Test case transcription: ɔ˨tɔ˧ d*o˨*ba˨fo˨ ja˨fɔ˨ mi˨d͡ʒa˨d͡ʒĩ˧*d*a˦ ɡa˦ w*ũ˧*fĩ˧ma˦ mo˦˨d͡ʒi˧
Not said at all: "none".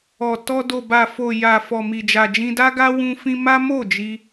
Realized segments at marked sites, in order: o˨, d, ũ˧

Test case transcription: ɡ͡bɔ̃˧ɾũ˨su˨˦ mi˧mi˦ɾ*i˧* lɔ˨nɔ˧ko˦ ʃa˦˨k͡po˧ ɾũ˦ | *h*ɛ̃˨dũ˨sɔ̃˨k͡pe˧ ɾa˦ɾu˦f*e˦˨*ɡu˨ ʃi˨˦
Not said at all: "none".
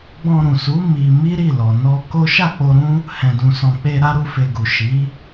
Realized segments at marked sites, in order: i˦˨, h, e˧

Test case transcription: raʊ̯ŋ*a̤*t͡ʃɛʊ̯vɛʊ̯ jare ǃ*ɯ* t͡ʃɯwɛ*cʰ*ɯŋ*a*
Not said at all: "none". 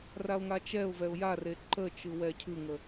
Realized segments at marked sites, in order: a, ə, cʰ, ə

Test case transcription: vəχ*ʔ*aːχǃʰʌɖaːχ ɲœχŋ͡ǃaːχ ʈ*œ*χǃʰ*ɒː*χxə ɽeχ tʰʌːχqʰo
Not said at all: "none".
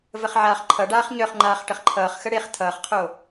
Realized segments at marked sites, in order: ʕ, ə, ʌː

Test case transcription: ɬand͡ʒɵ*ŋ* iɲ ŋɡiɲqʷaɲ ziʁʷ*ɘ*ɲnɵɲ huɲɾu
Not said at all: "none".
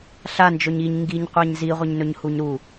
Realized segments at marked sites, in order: ɲ, ɘ

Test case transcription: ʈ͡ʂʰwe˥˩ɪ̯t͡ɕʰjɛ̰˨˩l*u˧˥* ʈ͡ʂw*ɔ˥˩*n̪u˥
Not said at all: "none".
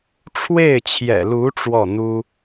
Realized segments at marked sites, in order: u˧˥, ɔ˥˩

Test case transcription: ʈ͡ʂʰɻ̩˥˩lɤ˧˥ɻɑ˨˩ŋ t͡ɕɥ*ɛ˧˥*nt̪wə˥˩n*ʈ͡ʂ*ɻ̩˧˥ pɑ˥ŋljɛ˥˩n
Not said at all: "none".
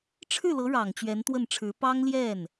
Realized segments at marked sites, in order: ɛ˧˥, ʈ͡ʂʰ

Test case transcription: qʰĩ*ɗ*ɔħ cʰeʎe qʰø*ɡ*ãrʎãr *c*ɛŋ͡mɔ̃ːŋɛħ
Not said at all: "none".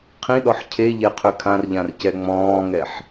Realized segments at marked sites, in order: ɗ, kʰ, c

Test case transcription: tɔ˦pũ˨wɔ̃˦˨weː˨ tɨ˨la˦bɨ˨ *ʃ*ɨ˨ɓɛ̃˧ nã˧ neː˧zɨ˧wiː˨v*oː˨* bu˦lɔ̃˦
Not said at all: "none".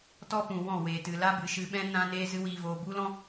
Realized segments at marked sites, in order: ʃ, oː˨

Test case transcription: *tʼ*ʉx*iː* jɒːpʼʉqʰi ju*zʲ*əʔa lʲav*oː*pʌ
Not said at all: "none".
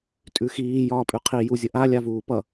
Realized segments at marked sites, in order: tʼ, iː, zʲ, uː

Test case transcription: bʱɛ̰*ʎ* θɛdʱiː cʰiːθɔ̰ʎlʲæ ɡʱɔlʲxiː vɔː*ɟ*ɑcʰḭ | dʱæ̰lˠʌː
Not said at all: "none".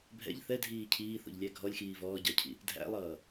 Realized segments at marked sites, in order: ʎ, ɟ

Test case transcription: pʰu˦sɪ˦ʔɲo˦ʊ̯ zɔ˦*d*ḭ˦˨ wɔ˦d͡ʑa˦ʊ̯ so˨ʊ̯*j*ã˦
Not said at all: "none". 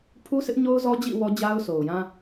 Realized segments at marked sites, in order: d͡ʑ, j

